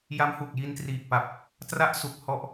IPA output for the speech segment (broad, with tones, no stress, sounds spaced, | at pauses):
j a˦˥ m h u˨˩ k̚ j i˧ n t r iː˨˩ k̚ p a˨˩ p̚ | t r a˦˥ ʔ s u˨˩ k̚ h ɔ˦˥ ʔ